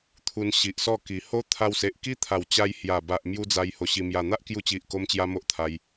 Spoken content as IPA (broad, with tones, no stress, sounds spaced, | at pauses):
t̪ʰ u˧ n ɕ i˨ ʔ s ɔ˥˧ k i˨˩ h o˦ t̪ʰ a˧ w s e˨ ʔ k i˦ t̪ʰ a˨˩ w t͡ɕ a˧ j h j a˨˩ b a˨ ʔ m j u˦ d͡z a˧ j h o˧ ɕ i˧ m j a˨˩ n̪ a˦ ʔ k j u˧ t͡ɕ i˨ ʔ k o˦ m t͡ɕ j a˦ m o˦ ʔ t̪ʰ a˧ j